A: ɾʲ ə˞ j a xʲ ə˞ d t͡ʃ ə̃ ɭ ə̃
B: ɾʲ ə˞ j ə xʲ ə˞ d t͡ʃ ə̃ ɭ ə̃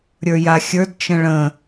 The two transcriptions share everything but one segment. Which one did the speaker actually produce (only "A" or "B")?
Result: A